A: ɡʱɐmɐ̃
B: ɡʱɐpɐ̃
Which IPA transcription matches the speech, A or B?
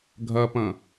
B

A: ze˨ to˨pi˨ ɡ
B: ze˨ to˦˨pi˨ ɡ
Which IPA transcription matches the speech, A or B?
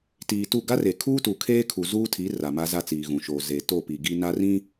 B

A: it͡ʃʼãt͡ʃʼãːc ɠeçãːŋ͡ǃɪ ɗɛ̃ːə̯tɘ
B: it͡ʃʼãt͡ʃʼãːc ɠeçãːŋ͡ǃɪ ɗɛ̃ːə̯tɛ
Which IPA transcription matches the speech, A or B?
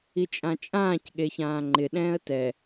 B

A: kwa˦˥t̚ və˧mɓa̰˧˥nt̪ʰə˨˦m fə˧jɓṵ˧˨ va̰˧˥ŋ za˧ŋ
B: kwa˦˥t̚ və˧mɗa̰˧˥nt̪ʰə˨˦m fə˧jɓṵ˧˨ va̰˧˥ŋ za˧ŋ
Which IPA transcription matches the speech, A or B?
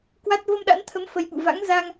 B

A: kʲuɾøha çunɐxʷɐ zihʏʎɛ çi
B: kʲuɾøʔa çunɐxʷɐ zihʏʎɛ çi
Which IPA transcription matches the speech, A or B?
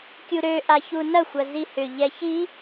B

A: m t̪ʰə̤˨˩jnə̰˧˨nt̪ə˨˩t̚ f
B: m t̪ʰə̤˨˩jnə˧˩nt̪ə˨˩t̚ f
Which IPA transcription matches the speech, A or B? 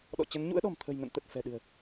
A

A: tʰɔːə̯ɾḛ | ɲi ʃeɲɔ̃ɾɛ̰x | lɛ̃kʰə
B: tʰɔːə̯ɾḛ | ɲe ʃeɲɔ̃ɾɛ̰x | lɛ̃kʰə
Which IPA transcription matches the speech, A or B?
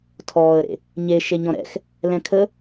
B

